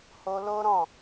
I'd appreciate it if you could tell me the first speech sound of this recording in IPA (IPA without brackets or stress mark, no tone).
h